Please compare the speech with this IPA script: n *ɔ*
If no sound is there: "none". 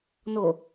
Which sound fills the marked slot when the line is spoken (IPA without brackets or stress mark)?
o